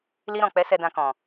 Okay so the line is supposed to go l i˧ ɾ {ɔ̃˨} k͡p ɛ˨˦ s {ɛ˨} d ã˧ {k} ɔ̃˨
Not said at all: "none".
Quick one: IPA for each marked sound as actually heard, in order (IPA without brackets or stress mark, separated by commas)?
ɔ̃˨, ɛ˧, k